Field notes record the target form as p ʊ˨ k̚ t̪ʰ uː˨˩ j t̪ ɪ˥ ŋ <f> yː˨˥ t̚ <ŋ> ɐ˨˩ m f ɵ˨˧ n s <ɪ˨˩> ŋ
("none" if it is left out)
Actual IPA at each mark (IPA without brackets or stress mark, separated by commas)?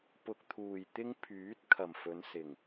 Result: pʰ, kʰ, ɪ˨˩